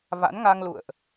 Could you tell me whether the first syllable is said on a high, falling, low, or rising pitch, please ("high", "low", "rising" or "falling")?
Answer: rising